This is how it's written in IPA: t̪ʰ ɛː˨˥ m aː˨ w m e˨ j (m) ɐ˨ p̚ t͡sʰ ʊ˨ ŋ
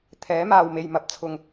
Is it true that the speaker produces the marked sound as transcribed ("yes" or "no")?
yes